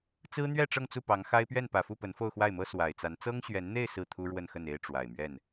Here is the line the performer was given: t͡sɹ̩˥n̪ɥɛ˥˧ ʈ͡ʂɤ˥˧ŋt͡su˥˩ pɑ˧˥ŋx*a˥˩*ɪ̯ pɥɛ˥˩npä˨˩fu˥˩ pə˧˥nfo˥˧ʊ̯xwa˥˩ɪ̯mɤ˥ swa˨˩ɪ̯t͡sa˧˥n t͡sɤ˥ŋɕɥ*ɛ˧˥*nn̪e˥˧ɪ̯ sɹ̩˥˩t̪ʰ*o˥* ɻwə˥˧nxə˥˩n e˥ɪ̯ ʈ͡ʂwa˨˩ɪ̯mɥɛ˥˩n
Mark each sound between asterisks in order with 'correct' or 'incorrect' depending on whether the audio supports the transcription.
incorrect: a˥, correct, incorrect: u˥

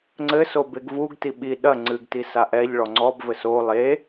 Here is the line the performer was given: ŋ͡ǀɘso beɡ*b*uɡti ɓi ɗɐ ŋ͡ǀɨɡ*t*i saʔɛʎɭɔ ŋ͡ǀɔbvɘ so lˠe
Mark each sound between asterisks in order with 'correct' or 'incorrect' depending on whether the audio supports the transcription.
incorrect: v, correct

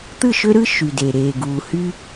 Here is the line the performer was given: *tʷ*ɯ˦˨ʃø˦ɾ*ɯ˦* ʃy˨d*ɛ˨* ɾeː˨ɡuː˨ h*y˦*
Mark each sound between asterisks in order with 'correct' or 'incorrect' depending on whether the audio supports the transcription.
incorrect: t̪, correct, incorrect: e˨, correct

